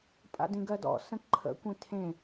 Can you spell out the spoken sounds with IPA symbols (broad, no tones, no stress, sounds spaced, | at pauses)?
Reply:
pʼ a̰ d ĩ ɡ ɜ d ɔ̰ s ə̃ ǃʰ ə̰ kʷ ĩ tʰ ẽ